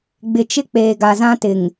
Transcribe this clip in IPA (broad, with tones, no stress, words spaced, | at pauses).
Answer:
ɡ͡bɪ˨t͡ʃɪ˦ k͡peː˨ɡa˨zã˦tɪ˨ŋ